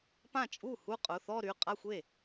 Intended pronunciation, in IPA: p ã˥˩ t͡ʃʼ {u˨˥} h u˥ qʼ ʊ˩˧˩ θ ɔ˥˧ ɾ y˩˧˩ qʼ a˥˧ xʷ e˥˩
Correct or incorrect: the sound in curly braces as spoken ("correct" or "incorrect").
incorrect